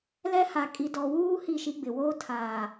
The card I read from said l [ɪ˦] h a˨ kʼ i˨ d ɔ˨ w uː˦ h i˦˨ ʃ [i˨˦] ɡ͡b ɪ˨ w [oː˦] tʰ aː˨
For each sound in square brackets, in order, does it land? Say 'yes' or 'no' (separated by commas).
no, no, yes